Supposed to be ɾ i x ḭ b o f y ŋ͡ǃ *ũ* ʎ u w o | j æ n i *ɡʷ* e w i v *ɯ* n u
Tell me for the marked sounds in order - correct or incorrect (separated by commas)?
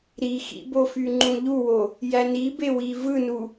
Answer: correct, incorrect, correct